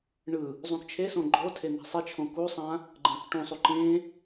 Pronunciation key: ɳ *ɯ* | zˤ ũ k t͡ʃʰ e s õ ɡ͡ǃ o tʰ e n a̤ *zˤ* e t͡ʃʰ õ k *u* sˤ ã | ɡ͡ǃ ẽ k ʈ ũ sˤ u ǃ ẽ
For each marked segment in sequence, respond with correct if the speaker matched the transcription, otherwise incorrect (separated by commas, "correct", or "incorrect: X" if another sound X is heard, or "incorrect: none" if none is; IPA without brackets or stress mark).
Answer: correct, incorrect: sˤ, correct